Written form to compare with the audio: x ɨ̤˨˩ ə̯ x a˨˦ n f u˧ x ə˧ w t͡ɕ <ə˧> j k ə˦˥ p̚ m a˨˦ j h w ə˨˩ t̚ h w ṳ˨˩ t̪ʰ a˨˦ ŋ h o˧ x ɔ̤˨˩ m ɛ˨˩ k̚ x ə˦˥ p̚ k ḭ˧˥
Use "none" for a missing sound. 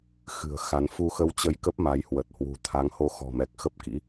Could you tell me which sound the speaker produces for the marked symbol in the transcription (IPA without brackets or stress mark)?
ə˧